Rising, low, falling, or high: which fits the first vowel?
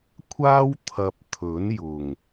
high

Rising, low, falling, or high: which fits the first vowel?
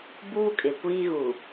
high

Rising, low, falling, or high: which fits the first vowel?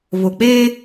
low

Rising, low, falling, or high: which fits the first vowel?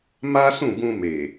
high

